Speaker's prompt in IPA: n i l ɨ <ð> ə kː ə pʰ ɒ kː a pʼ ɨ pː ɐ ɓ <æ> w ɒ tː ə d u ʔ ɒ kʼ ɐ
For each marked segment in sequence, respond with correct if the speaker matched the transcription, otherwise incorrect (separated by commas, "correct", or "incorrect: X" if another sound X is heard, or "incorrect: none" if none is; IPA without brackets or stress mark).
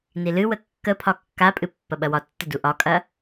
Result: incorrect: w, incorrect: ɐ